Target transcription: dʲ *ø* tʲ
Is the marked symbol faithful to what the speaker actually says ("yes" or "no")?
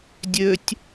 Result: yes